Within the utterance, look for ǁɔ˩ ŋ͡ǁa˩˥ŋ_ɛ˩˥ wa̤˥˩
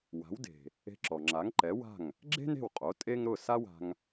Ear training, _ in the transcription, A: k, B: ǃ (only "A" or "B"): B